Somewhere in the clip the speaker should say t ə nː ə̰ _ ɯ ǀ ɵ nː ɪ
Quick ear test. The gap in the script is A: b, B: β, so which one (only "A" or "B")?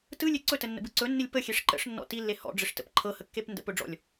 A